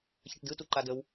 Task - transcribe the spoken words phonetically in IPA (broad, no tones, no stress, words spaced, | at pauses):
çɘʈdɯ tuǃadəw